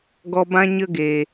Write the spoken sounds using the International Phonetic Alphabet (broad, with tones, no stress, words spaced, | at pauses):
ɡɔ˧bã˦ɲə˦ ɡe˨